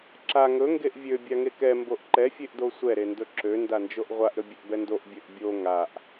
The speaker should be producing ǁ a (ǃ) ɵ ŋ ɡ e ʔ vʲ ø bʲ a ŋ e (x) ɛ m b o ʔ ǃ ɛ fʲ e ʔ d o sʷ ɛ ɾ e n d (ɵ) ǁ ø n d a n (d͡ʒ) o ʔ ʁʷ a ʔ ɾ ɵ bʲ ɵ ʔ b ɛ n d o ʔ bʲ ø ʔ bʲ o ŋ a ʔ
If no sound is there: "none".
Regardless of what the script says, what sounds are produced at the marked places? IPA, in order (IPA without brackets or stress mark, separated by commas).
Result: ŋ, k, ɵ, d͡ʒ